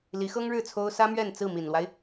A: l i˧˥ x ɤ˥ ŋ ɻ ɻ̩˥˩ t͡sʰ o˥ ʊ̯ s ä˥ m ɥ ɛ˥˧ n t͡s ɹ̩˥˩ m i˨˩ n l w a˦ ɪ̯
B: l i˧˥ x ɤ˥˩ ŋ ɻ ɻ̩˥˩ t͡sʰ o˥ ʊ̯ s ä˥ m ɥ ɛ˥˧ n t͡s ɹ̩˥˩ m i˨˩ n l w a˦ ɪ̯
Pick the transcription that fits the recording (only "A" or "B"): A